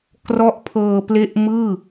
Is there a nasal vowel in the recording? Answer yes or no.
no